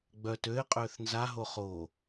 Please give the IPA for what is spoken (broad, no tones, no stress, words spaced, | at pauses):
ɡ͡bœt øɪ̯qʼøθ nzaɦo χo